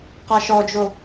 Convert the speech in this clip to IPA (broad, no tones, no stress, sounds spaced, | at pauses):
q a ʃ ɔ d͡ʒ o